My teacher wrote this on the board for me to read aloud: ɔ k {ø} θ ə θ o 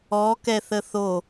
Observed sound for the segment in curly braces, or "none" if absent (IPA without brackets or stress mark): ɛ